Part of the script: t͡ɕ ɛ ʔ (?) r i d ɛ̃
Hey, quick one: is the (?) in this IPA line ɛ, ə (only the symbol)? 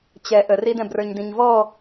ə